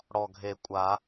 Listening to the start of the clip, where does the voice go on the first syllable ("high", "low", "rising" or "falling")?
low